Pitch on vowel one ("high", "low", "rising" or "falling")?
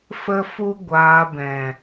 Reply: high